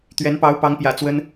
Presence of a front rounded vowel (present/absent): absent